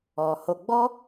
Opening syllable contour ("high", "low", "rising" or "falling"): low